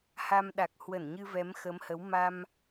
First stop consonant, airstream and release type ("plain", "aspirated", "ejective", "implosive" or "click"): implosive